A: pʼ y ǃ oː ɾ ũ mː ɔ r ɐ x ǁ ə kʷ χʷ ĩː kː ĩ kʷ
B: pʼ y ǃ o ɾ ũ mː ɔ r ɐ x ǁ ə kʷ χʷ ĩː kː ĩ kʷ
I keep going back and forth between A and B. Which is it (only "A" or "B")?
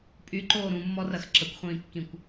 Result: A